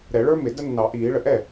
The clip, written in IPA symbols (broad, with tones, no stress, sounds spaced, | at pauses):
ɾ ɛ˨˩˦ ɭ ə˞˦˥ m ɪ˨˩˦ d ə˦˥ nː ɑ˨˩˦ ʔ iː˨˩˦ ɭ ə˨ ʔ ɛ˥˩